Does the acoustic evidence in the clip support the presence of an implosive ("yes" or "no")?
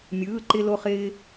no